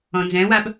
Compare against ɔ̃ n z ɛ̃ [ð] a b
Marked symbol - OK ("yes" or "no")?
no